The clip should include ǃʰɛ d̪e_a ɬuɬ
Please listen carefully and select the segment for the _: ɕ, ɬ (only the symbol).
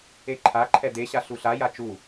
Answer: ɕ